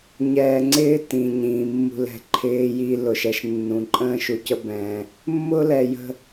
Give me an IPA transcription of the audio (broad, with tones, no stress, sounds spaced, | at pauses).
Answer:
ɲ ɛː˨ ŋ͡ǀ ɪː˦ t ĩː˨ ɲ ĩː˨ mː ṳ˦ l ɛ̤˦ ǃʰ ɪː˦ j i˦ l ʊ˨ ʃ ɛ˦ ʃ nː ũ˨ ǃʼ ə̃ː˦ ʃ u˨ c ə˦ b ɛ̃˦ | mː ʊː˦ l ɛ˨ j ə̤˦